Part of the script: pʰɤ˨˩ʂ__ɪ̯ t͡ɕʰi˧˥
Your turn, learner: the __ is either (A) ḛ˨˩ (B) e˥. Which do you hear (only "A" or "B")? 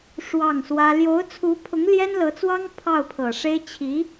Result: B